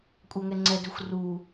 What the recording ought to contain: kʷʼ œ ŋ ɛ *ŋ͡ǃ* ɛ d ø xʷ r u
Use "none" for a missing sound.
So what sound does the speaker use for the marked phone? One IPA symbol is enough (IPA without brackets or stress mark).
ŋ͡ǀ